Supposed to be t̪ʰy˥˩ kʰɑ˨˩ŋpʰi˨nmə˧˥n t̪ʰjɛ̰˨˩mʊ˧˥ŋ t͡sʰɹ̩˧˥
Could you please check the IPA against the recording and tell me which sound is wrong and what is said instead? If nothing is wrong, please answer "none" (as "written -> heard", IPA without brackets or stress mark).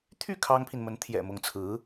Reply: ɑ˨˩ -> ɑ˥